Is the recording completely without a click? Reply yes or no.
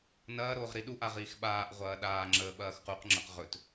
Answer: no